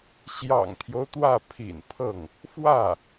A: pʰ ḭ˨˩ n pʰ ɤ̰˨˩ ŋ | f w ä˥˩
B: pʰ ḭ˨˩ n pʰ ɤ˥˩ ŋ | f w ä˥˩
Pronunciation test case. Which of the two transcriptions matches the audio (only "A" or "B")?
B